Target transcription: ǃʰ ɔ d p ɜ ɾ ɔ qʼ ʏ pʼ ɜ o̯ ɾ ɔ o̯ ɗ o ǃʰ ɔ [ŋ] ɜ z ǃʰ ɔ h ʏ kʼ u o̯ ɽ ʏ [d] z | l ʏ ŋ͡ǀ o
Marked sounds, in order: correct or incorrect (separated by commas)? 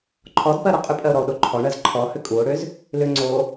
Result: incorrect, incorrect